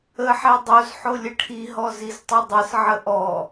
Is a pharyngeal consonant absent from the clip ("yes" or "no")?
no